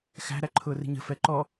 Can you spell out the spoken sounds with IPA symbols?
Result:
x æ̤ ɾ æ ǃʰ ʊː r i̤ ɲ ə̤ f ɛ ǃ ɔ

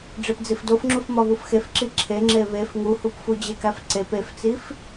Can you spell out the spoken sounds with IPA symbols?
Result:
ɖ͡ʐ e p d͡z i f d o f ŋ͡ǁ u f m ɒ β u f x e f ǁ i ǁʰ e ŋ͡ǁ e β e f ŋ u h u p f u d͡ʑ e k æ f ǀ e p e f t͡s i f

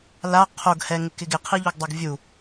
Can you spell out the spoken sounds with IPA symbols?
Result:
l a qʰ o ɡ h ɛ ŋ ɪ k ɪ ɡ ɪ qʰ i ʎ o ɡ dˤ o ɡ vʲ u

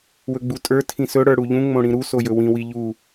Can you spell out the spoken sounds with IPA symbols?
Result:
w ɵ ɡ͡b u tʼ ə˞ tʰ ĩ s ɵ ɽ ə˞ ɽ u ʎ ũ ŋ͡m õ ɽ ĩ ɾ u s o j ɵ w ĩ w i ʎ u

